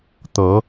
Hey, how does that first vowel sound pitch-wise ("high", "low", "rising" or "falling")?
rising